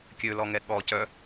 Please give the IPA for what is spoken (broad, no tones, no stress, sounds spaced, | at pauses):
kʲ ø l ɔ ŋ ɛ ɠ ɔ c œ